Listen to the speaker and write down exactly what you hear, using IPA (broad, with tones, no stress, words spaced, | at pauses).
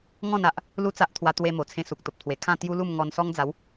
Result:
ŋɔ̃˥˧na˨ʔ | lu˥˧t͡sa˦ʔt̪ʰwa˧ t̪we˧ mo˨˩ t͡sʰẽ˧su˨k̚ t̪o˨p̚t̪ʰwe˨˩ kʰã˥˧t̪ju˦lu˥˧m ŋɔ˧nsɔ˦ŋ d͡za˨˦w